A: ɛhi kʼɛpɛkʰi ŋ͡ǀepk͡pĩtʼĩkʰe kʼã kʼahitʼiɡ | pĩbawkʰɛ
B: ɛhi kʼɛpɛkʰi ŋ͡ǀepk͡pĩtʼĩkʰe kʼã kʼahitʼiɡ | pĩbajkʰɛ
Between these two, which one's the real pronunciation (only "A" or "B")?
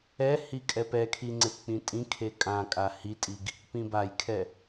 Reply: B